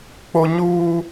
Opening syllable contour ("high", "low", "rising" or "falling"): high